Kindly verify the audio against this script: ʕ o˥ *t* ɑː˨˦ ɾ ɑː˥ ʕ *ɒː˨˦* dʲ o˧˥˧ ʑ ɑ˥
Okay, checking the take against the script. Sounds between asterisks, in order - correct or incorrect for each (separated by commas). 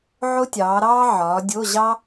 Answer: incorrect, correct